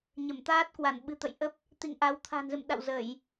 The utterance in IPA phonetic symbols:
ɲ ə˧˩ m t̪ aː˦˥ t̚ k w a˧˩ n ɓ ɨ̤˨˩ t̪ ə̰˧˨ j ʔ ə˦˥ p̚ | t̪ ḭ˧˨ ŋ ʔ a˨˦ w t̪ʰ a̤˨˩ n z ɨ̰˧˨ m ɗ a̰˧˨ w z ə˧˩˨ j

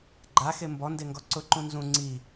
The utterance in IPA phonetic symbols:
ɡ͡ǃ a x e m b ɔ n d e ŋ ɡ ɔ ǀ ʊ ǃ ũ n z ũ ŋ͡ǀ i

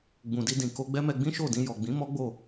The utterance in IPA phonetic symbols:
ɡ͡b ũ˨ d i˧ d ĩ˨ k o˧ ɡ͡b ɛ˦ m ɛ˧ ɡ͡b ĩ˦ ʃ o˦˨ d ĩ˧ j ɔ˨ ɡ͡b ĩ˨˦ m ɔ˦ ɡ͡b o˦˨

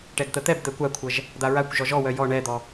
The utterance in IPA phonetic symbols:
ʈ ɛ ɡ t̪ ə t̪ ɛ b d̪ ɛ kʷ a kʷʰ ə ʒ | d̪ a ɹ a kʷ ʒ ɔ ʒ ɔ w œ j ɔ ɳ ɛ d̪ ɔ

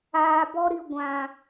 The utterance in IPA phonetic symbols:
aː˨ b ɔ˧ ɾ i˨ ɡʷ ã˨

